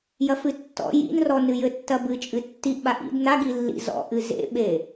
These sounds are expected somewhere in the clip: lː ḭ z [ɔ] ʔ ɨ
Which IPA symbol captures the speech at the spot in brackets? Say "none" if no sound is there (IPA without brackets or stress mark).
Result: ɔ̰